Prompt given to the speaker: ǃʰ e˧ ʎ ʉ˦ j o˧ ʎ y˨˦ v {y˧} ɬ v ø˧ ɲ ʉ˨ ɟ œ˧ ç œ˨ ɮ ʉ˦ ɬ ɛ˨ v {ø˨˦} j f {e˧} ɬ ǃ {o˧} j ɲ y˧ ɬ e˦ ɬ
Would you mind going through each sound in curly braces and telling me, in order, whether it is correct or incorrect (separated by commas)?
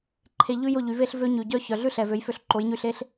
incorrect, correct, incorrect, incorrect